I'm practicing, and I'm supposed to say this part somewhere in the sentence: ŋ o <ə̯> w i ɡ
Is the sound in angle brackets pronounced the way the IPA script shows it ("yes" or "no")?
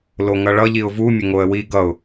yes